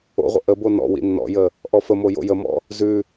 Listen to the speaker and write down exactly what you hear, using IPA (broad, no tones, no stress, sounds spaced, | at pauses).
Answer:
o̰ ʁʷ ə̰ ʔ ə b o n ɔ̰ w ḭ nː ɔ̰ j ə | ʔ ɔ f ə m o j o̰ j ə m ɔ̰ | z ʉ